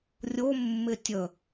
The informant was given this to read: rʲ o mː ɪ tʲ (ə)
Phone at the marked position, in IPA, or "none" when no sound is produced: ə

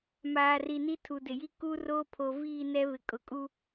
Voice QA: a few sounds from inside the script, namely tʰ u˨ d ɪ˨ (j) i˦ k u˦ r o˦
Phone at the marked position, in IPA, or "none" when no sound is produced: j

